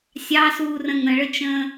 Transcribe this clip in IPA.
sʲ ɑ s uː r ə̃ ŋ ə̃ ɭ ə t͡ʃ ə̃ː

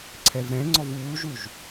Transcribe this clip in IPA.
ǀʰ ɛ v ɾ ɛ̃ ŋ͡ǀ ɔ v uː ʒ u ʒ

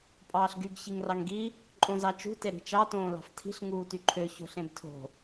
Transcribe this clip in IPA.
pʼ ɑː ɬ ɡ y ɡ ç i ŋ r ɑ ŋ ɡ i | ǃʼ õ z ɑ t͡ʃ ṳ t e ɾ i̤ t͡ʃ ɑ t õː l ɑ̤ f tʰ i̤ ɬ ŋ uː t y ǃʰ ø ç o̤ ɬ ẽ b tʰ o̤

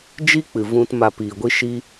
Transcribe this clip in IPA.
d͡ʒ i˦ k͡p ɨ˨ v ũ˧ t m a˧ p iː˨ ɡʷ i˦ ʃ i˦

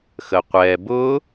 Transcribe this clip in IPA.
x ə qʷ ɛ b ʊ

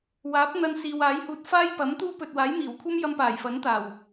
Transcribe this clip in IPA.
w aː˨˥ p̚ n̪ ɐ˧ n s iː˨ w aː˨˥ j h uː˧ t̚ f aː˥ j p ɐ˨˥ m t̪ uː˥ p ɵ˨ t̚ w aː˨˥ j m iː˨˩ w kʷʰ ɐ˥ m j ɐ˧ m p aː˨˩ j f ɐ˨˥ n t̪ aː˨˩ w

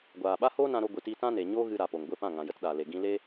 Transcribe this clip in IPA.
ɡʷ aː˨ ɓ a˦ h oː˦ n ã˧ ɾ o˧ ɡʷ ɨ˨ t i˧ t ã˦ n e˨ ɲ oː˦ ɣ ɨ˧ ɾ a˨ p o˨ ŋ ɡʷ e˦˨ p ã˦˨ ŋ ã˨ j ə˧ t ɗ aː˨ l e˨ ɡ ĩ˧ l e˦

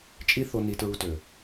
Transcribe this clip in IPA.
t͡ʃʼ i˦ θ o˧ n i˧ t ɹ u˧ t ø˨

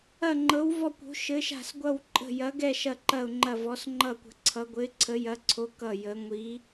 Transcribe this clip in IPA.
ɐ˥˧ ŋ͡ǃ ɤ˧˥ w v ɔ˥˧ kʷ o̤˧˥ ʃ ɘ˧˥ ʃ a̤˥˧ s ɡʷ ʌ˥˧ w ǃʼ ə̤˥˧ j ɐ˧˥ ɡ ɛ˥˧ ʃ ɐ˥˧ ǃ ɐ˥˧ ʊ̯ ŋ͡ǃ ɐ˥˧ v ɔ˧˥ s ŋ͡ǃ ʌ˥˧ kʷ ə̤˧˥ ǀʰ ʌ˧˥ ɡʷ ɘ˧˥ ɪ̯ ǀʰ ə˧˥ j ɐ˧˥ ǀʰ o˧˥ k ʌ˥˧ j ə˧˥ ŋʷ i˧˥

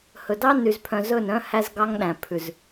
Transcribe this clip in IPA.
h ɵ˨ d ɑ˦ n y˨ z pʰ œ̃˨ z ɵ˦˨ n œ̃˦ h æ˦ z ɡ ɑ˦ ŋ ɗ æ̃˨ pʰ ʉ˨ z

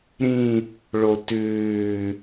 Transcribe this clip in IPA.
ɾ ĩ | ɭ o t ʉː

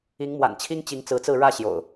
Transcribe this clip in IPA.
i˨˦ ŋ m w a̰˨˩ n t͡ɕʰ i˦ ŋ t͡ɕ i˨˦ ŋ t͡s ɹ̩˨˦ t͡s ɹ̩˥˨ ɻ ä˥˨ ɕ j o̰˨˩ ʊ̯

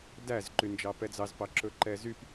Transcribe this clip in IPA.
d æ z ǃ y n d͡ʒ ɑ p ɛ d͡z ɑ z p ɑ ǁ ɵ ǃ ɛ z y p

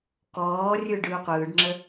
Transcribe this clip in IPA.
k ɔː rʲ ɯ ɖ ɯ u̯ qʷ ɯː ɖ ŋ͡ǁ ə

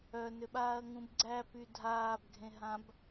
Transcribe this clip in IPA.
œ n ʏ ɓ aː ɐ̯ ŋ ũ b ɡ͡ǀ æ p y dʱ aː b ɡʱ ẽ ɦ ã b

